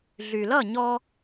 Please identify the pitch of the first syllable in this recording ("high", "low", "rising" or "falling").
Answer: low